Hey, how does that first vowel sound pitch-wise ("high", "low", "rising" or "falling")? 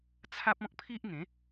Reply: high